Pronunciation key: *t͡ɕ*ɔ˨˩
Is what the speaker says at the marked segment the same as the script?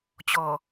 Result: yes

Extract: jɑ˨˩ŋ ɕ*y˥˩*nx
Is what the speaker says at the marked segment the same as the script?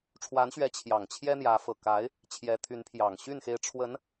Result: yes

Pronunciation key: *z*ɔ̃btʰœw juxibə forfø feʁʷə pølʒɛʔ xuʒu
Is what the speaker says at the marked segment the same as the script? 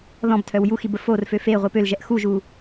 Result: no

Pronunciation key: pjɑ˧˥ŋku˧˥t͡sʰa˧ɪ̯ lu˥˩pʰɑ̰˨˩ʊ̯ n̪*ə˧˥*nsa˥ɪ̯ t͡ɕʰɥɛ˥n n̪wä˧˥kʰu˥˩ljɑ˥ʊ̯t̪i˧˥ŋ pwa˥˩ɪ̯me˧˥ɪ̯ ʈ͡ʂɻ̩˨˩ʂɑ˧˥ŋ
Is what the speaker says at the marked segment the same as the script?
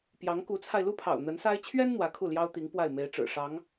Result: yes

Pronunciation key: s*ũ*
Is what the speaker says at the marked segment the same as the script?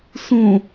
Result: yes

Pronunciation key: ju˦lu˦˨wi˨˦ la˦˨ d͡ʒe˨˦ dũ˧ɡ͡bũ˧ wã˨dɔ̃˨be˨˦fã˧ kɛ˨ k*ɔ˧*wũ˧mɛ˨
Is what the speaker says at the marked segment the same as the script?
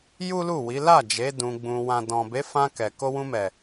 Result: no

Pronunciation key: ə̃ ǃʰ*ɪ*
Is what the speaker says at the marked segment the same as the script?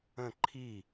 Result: no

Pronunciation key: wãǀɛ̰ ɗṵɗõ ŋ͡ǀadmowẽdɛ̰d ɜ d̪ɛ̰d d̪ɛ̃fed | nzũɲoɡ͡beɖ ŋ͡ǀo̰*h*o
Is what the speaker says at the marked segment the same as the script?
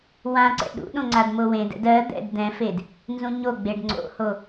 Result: yes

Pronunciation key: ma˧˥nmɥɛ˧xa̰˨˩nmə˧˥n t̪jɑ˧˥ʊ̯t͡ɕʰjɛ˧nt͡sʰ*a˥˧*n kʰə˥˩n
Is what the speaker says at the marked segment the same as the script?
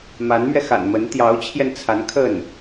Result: no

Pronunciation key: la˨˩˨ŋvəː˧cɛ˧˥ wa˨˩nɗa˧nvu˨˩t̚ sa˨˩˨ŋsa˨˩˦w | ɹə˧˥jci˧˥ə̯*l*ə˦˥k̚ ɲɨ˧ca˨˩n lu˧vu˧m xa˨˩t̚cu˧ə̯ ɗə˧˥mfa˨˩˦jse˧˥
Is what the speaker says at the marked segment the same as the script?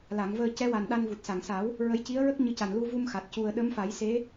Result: no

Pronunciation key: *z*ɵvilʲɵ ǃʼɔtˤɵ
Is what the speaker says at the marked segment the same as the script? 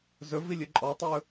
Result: yes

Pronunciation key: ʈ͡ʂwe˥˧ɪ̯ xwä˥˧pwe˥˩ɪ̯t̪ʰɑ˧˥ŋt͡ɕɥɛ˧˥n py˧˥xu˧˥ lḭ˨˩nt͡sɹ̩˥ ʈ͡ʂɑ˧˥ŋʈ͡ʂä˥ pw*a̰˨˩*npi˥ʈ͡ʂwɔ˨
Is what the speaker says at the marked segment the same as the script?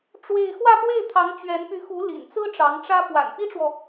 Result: yes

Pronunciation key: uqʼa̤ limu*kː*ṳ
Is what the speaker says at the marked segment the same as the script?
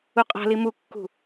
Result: yes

